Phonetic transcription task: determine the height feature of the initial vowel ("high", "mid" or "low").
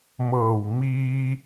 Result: mid